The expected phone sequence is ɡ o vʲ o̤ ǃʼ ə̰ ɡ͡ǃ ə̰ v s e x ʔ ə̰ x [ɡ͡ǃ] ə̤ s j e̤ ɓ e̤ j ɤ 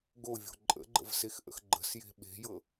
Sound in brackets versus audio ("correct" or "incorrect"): correct